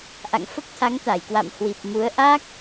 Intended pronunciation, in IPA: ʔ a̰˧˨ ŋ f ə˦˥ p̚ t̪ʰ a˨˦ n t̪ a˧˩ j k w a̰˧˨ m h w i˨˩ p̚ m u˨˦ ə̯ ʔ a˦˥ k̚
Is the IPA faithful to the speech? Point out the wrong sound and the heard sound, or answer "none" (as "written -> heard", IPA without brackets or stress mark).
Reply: n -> ŋ